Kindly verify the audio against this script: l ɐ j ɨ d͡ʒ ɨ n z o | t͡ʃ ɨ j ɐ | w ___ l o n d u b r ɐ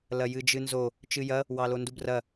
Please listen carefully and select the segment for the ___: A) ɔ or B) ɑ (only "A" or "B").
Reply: B